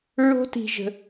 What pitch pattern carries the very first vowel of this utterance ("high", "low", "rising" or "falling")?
high